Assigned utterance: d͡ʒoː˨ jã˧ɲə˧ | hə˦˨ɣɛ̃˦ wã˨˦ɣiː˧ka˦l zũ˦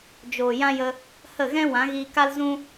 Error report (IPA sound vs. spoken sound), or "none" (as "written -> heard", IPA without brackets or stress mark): ɲ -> j